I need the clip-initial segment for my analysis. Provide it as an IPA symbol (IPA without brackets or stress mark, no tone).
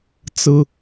t͡s